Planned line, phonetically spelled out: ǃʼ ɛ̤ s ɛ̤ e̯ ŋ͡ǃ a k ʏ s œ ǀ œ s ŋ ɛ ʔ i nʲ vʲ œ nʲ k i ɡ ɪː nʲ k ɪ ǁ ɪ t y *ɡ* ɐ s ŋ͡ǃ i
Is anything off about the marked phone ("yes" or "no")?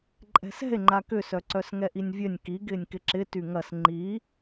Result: yes